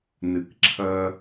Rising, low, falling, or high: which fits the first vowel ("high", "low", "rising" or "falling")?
low